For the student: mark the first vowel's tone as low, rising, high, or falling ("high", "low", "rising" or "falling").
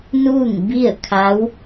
falling